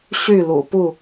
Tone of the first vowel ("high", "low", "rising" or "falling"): falling